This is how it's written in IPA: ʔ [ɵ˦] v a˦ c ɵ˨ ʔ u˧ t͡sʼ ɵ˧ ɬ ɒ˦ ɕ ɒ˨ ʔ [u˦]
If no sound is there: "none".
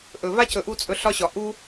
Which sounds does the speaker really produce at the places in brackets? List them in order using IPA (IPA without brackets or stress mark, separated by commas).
ɵ˨, u˦